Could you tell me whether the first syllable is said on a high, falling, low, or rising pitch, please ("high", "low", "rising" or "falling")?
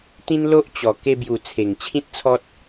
high